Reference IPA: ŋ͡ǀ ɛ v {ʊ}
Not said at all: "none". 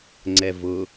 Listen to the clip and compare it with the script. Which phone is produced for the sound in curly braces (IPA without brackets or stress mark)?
ʊ